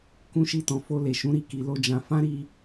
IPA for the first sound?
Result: k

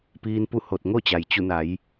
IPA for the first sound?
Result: p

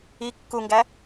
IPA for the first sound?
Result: i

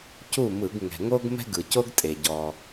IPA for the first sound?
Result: c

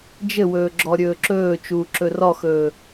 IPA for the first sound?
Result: d͡ʒ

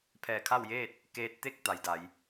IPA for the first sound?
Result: pʰ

